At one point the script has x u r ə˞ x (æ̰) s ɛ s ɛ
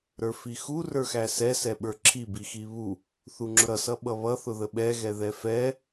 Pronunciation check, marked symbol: incorrect: æ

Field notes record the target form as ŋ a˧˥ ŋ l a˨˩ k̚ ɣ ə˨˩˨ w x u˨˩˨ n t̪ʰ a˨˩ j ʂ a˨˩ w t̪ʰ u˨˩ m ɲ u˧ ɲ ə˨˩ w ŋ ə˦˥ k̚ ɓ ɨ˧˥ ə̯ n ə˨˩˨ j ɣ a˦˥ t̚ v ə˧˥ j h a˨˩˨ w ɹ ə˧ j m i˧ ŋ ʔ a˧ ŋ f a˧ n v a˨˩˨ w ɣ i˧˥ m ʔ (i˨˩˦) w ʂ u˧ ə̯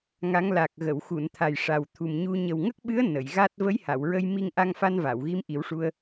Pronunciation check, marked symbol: correct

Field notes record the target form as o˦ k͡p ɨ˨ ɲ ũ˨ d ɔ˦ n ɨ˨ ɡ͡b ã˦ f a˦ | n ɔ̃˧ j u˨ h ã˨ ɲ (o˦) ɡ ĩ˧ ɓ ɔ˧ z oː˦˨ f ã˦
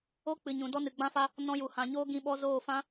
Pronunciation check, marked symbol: incorrect: oː˦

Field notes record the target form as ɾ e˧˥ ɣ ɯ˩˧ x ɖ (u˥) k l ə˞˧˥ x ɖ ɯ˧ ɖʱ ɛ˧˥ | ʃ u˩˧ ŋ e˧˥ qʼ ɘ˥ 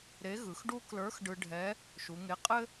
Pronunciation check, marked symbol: correct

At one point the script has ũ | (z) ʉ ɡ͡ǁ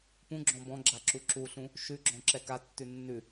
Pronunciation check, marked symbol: incorrect: ʃ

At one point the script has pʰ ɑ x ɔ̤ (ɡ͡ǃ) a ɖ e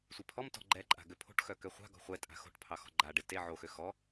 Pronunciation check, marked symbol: correct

